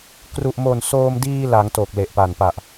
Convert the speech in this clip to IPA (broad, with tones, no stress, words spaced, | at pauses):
kru˨˩ʔmo˨˩n soː˧mdiː˧la˩˦ŋto˨˩k̚ le˨˩ʔpa˨˩n pa˨˩ʔ